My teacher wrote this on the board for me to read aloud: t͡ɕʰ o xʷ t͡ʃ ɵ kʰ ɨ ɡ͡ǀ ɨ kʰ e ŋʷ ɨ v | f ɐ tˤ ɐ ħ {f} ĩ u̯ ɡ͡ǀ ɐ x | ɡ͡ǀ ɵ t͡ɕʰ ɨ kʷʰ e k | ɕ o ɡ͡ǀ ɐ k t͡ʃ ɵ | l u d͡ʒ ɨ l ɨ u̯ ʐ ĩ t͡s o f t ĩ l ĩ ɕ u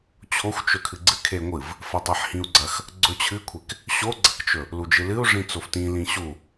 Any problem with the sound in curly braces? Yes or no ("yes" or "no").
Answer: yes